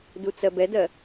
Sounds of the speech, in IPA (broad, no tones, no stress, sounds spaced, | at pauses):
d u t͡s ɜ b ɛ d ɜ